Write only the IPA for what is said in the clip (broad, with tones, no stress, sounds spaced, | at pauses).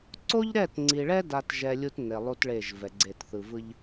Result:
ǀ o˦ ʎ ɾ ɛ˦˨ t ŋ͡ǀ i˨ ɭ ɛ˦ d a˦ t ʒ ɛ˦ lʲ u˦ t n e˨ lˠ u˦ t ɭ e˦˨ ʒ v ɛ˨ ɡ͡ǀ e˦˨ t θ ɯ˨ v ɯ˦ ʎ